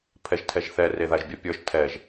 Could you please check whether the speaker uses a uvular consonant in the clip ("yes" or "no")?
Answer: no